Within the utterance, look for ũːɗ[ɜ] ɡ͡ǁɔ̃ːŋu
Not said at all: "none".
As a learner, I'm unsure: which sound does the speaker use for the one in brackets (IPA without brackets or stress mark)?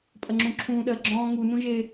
ɜ